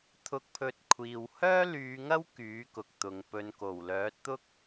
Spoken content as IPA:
t̪ʰʊ˨˥k̚pʰɵ˨t̚ kʷʰiː˨w hœː˥lyː˨˧ŋɐ˥w kyː˨˥kʊ˨k̚t̪ʊ˨ŋpɵ˧n ko˨˩wlœː˨˥t̚t̪ʊ˥k̚

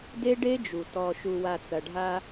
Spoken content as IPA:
de˦ɖe˦d͡ʒu˨ tɔ˨ʃu˨wa˨ t͡sɐ˨ɖʱa˦

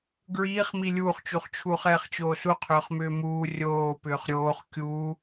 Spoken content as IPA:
ɡɹiːχmi lʲuːχt͡ɕuχt͡ɕʰuːχ ɛːχt͡ɕoːsu qʰʏːχmʏːmuː rʲoːpʏːχ ɾʲoːχ kʲuː

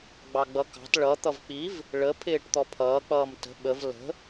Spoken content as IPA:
ɡ͡bɑɡ͡bʌkɑ̤t ɭʌ t̪ʌvk͡piv | ɭə pʰɪːʈt̪ɔpʰʌː k͡pʌːmtə̤ ɓəv lə̤

